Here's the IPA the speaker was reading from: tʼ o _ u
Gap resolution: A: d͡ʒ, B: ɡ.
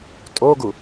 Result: B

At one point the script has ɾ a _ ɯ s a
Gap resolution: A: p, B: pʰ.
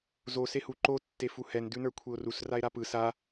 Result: A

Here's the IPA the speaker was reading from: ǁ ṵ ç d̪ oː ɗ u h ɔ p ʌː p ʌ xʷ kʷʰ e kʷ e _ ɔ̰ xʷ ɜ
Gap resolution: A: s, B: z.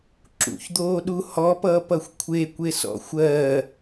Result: A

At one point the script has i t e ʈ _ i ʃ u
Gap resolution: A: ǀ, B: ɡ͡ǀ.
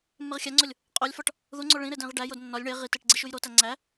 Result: B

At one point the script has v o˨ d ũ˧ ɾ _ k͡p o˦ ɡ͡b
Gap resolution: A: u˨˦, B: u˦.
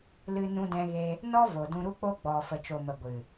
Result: B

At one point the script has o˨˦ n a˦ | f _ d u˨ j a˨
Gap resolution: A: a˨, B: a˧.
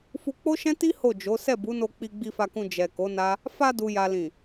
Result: B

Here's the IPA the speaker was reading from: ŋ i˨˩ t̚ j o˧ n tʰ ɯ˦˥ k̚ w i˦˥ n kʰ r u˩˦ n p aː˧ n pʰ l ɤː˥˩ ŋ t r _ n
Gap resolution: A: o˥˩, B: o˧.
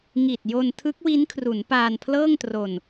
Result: B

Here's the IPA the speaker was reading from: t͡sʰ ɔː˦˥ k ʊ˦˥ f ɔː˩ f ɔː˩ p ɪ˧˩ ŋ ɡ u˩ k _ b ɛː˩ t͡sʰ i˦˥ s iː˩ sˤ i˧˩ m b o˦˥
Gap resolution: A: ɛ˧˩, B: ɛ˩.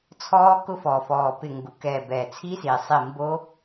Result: A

